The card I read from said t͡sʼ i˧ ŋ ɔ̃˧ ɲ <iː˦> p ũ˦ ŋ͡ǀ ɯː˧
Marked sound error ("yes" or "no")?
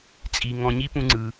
yes